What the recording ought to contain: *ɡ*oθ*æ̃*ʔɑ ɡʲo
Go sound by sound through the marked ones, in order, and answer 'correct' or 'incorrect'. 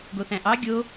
correct, correct

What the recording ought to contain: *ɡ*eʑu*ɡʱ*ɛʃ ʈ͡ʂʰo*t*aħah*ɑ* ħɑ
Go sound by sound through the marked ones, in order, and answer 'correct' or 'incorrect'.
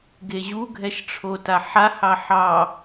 correct, correct, correct, correct

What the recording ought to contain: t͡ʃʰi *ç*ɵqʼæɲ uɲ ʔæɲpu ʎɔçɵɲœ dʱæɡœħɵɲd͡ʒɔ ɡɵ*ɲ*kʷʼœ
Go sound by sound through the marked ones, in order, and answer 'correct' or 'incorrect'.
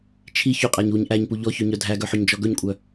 correct, correct

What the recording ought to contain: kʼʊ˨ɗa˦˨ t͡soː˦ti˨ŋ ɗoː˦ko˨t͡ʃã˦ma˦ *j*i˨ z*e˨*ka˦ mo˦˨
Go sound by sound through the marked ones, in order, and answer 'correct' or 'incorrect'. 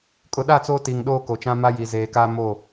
correct, incorrect: eː˨

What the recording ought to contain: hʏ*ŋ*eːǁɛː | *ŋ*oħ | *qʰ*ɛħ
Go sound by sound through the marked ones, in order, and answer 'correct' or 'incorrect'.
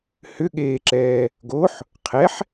incorrect: ɠ, incorrect: ɡ, correct

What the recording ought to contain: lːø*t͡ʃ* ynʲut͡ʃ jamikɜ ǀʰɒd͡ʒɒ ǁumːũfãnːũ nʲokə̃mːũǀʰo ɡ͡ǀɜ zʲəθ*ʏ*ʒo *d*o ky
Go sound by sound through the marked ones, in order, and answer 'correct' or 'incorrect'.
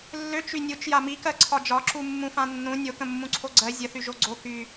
correct, incorrect: y, incorrect: ɡ͡ǀ

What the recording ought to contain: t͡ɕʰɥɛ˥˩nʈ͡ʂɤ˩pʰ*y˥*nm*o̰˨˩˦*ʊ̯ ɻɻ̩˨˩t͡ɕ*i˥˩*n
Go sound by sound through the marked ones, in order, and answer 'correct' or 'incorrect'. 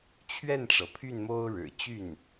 incorrect: y˥˩, incorrect: o˥, incorrect: y˥˩

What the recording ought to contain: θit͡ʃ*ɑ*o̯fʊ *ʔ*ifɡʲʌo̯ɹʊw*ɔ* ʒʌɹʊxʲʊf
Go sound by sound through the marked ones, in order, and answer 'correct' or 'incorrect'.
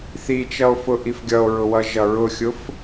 incorrect: ʌ, correct, incorrect: ʌ

